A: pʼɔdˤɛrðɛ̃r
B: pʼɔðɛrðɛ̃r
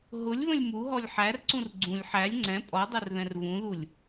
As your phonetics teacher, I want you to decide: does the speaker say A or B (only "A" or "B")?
A